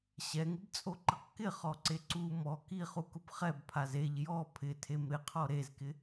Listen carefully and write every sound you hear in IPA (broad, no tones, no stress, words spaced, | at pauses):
ɕɛŋɪbt͡sʼoǃɪq kɪχɔǀe ǀu mɔ kiχukʊb χɛbpʰaz eʎ jɔ pʰɪtʰem ɾɪqʰɔ ɾezkɪ